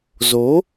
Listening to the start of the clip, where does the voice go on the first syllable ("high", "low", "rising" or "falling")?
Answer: rising